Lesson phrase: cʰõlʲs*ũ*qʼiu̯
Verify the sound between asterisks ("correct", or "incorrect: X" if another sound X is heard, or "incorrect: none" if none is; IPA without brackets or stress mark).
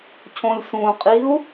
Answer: correct